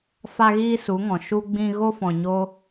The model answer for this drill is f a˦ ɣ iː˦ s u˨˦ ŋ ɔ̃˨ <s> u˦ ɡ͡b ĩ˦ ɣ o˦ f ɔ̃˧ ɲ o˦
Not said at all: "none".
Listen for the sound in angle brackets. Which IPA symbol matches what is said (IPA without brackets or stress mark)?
ʃ